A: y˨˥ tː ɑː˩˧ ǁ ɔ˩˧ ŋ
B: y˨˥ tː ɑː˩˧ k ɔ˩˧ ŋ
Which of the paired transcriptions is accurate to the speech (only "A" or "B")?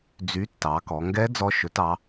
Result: B